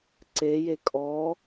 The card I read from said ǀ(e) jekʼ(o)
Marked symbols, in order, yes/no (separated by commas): yes, no